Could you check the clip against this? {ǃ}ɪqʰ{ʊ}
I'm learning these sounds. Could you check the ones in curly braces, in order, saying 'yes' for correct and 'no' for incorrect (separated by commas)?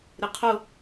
no, yes